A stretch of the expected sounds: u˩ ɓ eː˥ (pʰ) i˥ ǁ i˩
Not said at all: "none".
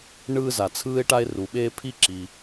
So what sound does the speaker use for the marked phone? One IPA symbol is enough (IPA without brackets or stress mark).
pʰ